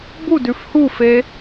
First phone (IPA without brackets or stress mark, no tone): b